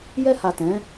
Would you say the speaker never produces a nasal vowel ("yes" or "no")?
no